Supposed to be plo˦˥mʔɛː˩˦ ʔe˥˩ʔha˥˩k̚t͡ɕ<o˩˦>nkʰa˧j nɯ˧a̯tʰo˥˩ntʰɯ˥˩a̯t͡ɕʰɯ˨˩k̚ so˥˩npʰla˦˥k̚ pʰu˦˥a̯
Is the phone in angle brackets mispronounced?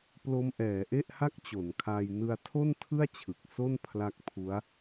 no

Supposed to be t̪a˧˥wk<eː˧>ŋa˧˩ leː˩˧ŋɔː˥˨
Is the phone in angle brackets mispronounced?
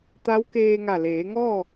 no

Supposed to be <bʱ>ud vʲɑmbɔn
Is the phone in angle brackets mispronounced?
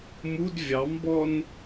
yes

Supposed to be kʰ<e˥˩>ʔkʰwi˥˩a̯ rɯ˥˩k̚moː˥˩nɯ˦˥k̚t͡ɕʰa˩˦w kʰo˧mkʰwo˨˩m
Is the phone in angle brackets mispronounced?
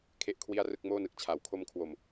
no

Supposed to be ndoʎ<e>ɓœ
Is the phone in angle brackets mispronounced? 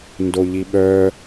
yes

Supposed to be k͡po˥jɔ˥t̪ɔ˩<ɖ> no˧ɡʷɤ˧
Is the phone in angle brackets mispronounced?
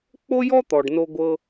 no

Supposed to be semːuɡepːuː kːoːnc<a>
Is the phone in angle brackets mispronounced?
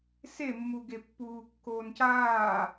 yes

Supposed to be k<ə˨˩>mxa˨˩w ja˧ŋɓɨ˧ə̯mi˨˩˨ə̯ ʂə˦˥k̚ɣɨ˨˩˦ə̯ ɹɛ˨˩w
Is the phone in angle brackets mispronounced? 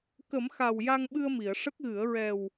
yes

